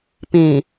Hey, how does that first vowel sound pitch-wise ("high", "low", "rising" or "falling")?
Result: low